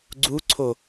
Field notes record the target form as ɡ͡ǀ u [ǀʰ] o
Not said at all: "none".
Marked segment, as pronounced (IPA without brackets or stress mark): ǀʰ